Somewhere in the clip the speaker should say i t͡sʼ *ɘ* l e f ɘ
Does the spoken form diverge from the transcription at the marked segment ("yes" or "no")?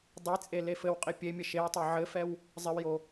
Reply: yes